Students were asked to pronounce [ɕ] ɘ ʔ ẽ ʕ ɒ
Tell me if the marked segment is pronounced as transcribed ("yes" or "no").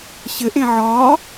yes